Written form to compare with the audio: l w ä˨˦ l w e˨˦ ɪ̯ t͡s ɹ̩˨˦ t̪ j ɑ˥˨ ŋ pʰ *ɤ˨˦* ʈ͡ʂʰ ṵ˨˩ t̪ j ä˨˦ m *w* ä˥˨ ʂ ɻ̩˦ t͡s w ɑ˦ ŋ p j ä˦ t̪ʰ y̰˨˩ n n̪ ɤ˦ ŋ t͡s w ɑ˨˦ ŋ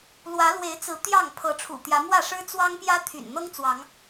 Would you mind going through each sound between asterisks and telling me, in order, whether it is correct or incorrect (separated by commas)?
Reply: correct, correct